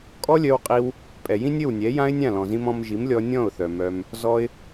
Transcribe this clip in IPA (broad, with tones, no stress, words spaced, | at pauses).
kʼɔ˦lʲœ˧wqʼi˧w | pʼɛ˨jĩ˦nʲɘ˦˨wnʲɛ˨˦ jã˦ɪ̯nʲã˦˨lɔ̃˨zĩ˧m ɔ̃˧m ʒi˨˦mlʲɔ˧ nʲɔ̃˦˨ʊ̯θœ˨ mœ˧m | zɔ˧ɪ̯